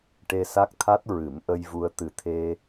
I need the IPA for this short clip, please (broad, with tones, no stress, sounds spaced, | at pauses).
ʈ e˧ s a˦˥ k̚ t̪ʰ a˦˥ t̚ ɹ ɨ˨˩˦ m ʔ ə˧ j v u˧ ə̯ t̪ ɨ˨˩ t̪ʰ e˧